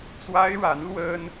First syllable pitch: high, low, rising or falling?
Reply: high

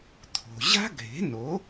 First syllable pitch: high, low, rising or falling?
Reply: low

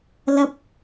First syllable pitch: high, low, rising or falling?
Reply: high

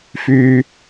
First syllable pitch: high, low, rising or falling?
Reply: low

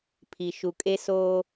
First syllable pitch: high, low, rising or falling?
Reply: low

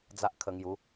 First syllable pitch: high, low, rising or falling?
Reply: high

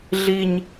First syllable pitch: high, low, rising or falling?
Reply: high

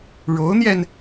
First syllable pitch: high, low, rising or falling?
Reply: rising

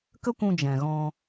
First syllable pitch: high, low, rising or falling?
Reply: high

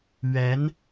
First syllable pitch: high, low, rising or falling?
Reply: rising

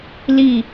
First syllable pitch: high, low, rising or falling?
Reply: falling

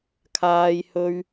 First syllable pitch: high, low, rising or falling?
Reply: high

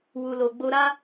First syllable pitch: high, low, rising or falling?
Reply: low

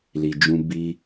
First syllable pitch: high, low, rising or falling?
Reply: low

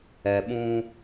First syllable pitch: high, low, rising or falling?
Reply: low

